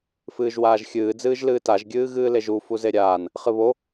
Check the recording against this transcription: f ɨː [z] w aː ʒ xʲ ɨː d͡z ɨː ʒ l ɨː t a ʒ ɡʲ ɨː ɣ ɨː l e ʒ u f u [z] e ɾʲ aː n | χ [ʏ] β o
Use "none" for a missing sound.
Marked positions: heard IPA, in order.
ʒ, z, ɨ

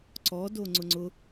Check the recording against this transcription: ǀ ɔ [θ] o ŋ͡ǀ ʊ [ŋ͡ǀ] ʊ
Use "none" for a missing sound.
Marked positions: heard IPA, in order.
d, ŋ͡ǀ

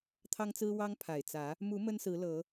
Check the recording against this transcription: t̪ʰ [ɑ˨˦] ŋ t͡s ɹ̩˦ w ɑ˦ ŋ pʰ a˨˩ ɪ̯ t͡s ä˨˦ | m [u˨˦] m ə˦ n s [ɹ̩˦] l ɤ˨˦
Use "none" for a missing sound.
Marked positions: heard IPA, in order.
ɑ˦, u˨˦, ɹ̩˨˦

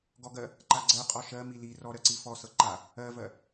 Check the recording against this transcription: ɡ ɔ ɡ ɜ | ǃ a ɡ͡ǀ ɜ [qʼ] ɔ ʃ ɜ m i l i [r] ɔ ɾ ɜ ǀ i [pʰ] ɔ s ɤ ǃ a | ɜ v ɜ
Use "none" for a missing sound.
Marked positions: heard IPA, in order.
qʼ, r, f

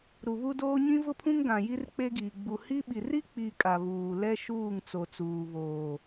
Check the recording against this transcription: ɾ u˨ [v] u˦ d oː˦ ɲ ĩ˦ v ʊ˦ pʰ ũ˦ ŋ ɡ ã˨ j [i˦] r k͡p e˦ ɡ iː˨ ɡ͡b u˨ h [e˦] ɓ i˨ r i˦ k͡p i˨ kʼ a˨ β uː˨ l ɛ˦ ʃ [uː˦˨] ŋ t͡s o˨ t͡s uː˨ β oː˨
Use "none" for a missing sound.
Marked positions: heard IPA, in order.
β, i˦, i˦, uː˦˨

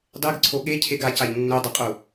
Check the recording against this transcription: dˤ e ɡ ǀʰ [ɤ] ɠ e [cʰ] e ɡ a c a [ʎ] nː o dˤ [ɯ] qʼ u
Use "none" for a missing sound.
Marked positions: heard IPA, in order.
o, cʰ, ʎ, ɯ

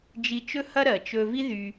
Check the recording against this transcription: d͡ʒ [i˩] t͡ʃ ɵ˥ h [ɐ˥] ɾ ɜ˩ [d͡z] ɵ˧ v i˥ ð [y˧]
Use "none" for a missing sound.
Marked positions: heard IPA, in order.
i˧, ɐ˥, t͡ʃ, y˧

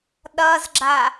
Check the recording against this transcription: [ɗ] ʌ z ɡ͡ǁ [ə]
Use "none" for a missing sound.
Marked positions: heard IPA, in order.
ɗ, a

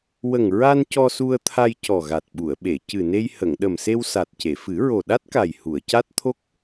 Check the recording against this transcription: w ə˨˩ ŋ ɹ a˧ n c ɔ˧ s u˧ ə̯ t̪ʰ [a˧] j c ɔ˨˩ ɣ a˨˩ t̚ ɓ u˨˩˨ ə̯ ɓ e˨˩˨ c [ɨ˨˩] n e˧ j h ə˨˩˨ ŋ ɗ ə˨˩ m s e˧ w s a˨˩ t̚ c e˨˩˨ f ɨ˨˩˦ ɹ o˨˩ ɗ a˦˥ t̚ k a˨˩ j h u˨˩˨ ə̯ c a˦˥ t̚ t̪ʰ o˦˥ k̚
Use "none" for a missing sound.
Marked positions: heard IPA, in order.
a˧, ɨ˨˩

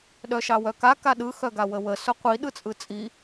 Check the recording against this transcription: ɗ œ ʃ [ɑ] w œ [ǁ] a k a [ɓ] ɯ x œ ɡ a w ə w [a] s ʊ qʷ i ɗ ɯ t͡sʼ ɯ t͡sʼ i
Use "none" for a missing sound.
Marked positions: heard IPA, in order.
ɑ, k, ɗ, ə

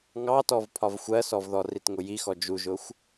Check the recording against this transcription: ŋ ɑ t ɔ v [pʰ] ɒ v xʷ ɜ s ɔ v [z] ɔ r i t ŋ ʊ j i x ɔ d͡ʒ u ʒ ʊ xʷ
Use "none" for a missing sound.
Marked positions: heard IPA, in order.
pʰ, ð

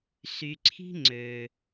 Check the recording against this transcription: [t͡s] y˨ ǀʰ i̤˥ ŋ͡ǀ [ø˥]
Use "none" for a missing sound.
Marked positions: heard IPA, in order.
s, ø˩

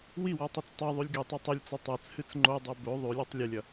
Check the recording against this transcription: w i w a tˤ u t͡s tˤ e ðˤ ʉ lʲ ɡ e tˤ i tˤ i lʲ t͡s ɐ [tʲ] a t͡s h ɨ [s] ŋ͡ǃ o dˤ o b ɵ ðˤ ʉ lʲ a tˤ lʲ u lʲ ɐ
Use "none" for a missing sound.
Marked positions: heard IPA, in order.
tˤ, t͡s

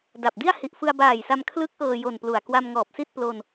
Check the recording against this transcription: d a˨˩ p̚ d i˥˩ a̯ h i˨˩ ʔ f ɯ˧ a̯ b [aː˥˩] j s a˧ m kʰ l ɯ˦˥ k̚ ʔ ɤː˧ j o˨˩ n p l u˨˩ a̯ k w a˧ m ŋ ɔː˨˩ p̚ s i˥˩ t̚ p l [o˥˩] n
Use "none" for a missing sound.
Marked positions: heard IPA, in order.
aː˨˩, o˧

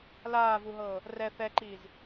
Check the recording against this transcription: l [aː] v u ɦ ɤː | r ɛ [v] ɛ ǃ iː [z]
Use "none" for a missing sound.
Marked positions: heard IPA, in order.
aː, θ, z

